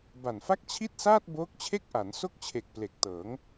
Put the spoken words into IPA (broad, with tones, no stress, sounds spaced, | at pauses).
b a˨˩ n f a˥˩ k̚ t͡ɕʰ i˥˩ t̚ s aː˥˩ t̚ b oː˦˥ k̚ t͡ɕʰ e˥˩ k̚ ʔ a˩˦ n s o˥˩ k̚ t͡ɕʰ e˨˩ k̚ p l e˨˩ k̚ t ɤː˩˦ ŋ